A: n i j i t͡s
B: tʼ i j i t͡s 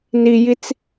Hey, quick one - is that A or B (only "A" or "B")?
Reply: A